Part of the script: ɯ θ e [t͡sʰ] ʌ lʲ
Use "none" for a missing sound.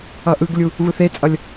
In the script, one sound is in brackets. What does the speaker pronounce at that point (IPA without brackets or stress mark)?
t͡sʼ